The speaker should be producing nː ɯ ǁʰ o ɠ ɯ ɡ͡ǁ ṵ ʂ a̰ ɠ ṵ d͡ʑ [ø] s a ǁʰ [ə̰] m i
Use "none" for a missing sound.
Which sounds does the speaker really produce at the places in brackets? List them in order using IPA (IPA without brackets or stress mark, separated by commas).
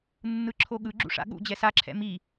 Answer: ɛ, ɛ̰